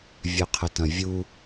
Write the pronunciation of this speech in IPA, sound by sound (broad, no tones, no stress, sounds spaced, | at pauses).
vʲ œ qʰ ə t ɐ̃ vʲ u